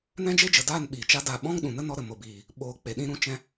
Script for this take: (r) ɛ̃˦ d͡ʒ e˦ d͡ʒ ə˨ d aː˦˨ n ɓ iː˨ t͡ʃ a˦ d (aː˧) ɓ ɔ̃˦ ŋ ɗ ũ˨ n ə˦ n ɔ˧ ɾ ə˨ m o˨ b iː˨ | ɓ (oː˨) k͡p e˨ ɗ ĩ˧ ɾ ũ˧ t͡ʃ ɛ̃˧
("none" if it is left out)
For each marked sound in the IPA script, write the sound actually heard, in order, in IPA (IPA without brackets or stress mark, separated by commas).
n, aː˦˨, oː˨